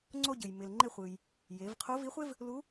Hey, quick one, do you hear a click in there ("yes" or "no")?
yes